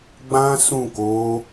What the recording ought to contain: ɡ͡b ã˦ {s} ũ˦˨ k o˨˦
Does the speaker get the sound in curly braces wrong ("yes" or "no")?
no